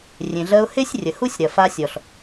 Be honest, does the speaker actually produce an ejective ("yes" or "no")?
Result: no